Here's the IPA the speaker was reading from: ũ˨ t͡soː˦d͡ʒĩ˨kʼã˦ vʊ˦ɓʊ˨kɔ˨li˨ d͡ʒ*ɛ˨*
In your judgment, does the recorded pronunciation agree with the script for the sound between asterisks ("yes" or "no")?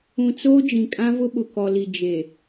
no